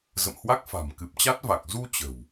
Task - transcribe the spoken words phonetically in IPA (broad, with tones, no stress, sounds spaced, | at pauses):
z ə̰˧˨ m h w a˦˥ k̚ f a̤˨˩ m k ɨ˨˩ p̚ t͡ɕ a˦˥ t̚ v a˨˩ k̚ z u˧ t͡ɕ ə̤˨˩ w